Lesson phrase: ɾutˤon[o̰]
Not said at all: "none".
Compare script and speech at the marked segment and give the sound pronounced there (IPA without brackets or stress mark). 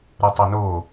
o